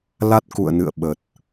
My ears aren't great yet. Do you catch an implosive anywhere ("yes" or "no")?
yes